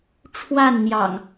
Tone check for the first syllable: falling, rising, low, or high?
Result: falling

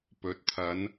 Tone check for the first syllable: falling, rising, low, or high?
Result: rising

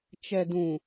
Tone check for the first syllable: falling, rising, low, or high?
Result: low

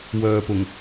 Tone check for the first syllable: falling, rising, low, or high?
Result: low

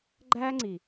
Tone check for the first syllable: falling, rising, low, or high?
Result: high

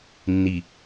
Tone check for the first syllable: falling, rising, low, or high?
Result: low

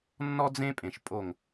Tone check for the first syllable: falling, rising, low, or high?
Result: high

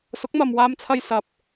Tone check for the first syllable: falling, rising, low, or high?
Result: rising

